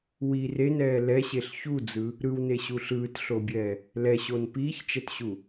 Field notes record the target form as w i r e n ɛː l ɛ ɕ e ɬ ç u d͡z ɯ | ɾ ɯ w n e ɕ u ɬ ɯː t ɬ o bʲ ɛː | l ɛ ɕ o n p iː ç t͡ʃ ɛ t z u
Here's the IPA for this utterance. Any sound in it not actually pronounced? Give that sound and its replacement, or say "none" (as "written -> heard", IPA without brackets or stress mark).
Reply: z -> ɕ